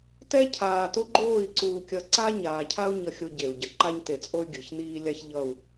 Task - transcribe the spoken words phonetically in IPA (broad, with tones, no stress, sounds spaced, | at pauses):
t ɛ˦ cʰ aː˨ t o˦ ɡ͡ǃ oː˦˨ i̯ ǀ uː˨ kʲ ʌ˨ ǀ a˦ ɲ aː˨ cʰ a˦ u̯ ɲ ʌ˦ xʲ o˦ ɟ e˨ u̯ ɟ ʌ˨ ǃ a˦ ɲ t e˨ t͡sʼ o˦ y̯ ɡʲ ɯ˨ ç n iː˦ lʲ a˦ ç ʎ ʌ˦˨ u̯